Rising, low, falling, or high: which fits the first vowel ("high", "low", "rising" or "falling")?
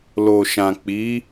low